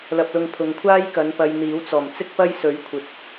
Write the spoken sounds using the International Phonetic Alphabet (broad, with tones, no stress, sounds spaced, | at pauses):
l ɐ˧ p̚ l ʊ˧ ŋ pʰ ʊ˨ ŋ kʷʰ aː˥ j k ɐ˨˧ n p ɐ˧ j n̪ iː˨˥ w t͡s ɔː˨˩ m t͡s ɪ˥ k̚ p ɐ˥ j s ɵ˨˥ ɥ kʷʰ ɪ˨ k̚